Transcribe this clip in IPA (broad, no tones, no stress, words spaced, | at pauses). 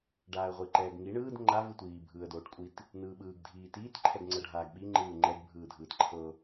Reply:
ɖaːə̯ʁʷiǃɛːɡŋi ɳɯːd ŋ͡ǃa vɯtʷiː bʱɯːə̯doːʈkʷʼit | nɯːɓɯːɡ dʱiːtiːt ǃʰɛɡŋ͡ǀɤɖʱaːɡɓi ŋ͡ǃɯːŋ͡ǃɛɡ bʱɯːdʱɯːtǃʰɤ